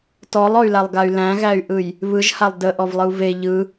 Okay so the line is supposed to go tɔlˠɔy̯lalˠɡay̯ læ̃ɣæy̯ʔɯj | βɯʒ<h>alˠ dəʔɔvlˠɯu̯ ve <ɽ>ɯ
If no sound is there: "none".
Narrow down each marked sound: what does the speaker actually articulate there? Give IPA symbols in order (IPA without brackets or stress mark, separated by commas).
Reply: h, ʎ